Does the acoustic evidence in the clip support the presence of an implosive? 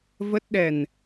yes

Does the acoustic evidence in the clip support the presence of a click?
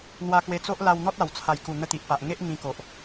no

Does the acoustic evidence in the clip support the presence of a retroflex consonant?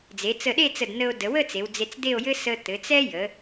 no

